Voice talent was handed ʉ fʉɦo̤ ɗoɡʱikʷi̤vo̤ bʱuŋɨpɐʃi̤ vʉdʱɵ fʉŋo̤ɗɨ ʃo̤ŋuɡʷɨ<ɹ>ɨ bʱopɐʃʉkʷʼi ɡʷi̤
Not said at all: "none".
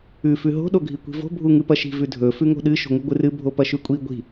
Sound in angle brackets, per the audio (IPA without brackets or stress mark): r